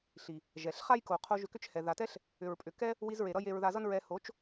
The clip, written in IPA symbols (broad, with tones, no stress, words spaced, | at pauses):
ɬi˨ | ʒɛ˨ɬ χa˦jko˨ qʰo˧ ʒʏ˧kʏ˦t͡ʃhɛ˨ ða˨tɛ˦ɬ | ʏ˨ɹpʼʏ˨kɛ˦ | wi˧zɹe˨ ɾʌ˦je˧ɹ ða˧zʌ˦nɹɛ˧ ho˨˦t͡ʃ